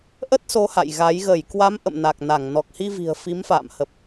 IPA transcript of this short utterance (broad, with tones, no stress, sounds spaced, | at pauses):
ʔ ə˦˥ t̚ s o˨˦ h a̰˧˨ j ɣ a˨˦ j ɣ ə˧˩ j k w a˨˦ m ʔ ə̰˧˨ m n a˨˩ k̚ n a˧˩ ŋ n ɔ˨˩ k̚ h i˧ v i̤˨˩ ə̯ f i˨˦ m f a̰ː˧˨ m h ə˨˩ p̚